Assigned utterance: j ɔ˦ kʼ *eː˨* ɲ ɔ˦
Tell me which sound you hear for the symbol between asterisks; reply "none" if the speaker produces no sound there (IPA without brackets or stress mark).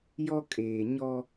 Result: eː˨